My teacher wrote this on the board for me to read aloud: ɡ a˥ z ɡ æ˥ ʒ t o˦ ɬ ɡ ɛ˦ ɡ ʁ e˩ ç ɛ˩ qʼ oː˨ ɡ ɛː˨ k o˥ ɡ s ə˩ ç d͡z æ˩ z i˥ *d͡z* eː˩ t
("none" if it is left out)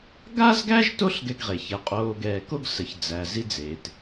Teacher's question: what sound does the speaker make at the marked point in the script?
d͡z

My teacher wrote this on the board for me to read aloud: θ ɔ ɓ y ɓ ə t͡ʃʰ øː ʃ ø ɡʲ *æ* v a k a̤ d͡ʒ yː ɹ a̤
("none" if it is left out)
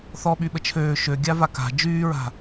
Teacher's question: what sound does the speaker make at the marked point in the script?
a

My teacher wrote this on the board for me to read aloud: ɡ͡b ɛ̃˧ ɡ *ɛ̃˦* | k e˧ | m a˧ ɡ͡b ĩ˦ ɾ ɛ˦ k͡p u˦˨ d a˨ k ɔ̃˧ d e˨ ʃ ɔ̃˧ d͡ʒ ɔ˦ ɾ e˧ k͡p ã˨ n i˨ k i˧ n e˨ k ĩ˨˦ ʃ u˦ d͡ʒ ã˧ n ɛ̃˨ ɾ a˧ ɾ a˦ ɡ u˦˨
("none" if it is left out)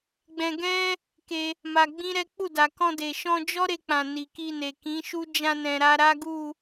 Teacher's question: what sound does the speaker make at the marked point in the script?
ɛ̃˦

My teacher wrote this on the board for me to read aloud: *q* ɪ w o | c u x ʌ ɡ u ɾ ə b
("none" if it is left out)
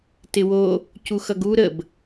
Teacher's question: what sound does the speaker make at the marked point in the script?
t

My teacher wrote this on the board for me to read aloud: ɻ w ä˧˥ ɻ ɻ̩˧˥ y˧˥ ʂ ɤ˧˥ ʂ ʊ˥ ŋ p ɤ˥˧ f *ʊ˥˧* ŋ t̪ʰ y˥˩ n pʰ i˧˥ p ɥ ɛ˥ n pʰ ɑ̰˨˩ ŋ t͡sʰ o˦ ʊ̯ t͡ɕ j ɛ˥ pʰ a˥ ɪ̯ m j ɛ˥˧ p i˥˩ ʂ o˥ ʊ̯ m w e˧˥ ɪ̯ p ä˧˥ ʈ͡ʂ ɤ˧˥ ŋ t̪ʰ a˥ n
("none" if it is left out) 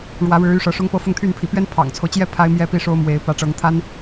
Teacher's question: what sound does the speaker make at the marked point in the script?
ʊ˥˧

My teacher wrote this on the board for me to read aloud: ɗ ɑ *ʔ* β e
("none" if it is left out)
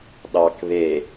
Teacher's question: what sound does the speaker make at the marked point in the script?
k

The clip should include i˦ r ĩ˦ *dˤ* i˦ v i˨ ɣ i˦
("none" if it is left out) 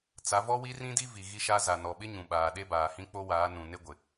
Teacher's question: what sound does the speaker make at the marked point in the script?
d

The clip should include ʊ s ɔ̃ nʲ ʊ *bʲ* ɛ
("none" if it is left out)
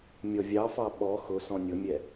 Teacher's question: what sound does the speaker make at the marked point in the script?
mʲ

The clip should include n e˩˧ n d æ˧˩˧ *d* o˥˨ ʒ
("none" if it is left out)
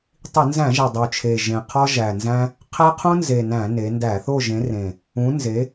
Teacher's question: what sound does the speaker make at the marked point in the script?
θ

